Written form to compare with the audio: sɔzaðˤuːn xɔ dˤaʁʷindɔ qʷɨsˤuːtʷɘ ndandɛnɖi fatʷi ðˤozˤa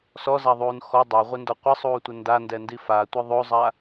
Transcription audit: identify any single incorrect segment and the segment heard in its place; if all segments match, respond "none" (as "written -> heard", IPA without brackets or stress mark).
ɖ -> d